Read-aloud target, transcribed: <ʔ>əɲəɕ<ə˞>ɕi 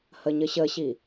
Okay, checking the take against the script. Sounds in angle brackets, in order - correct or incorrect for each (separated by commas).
incorrect, incorrect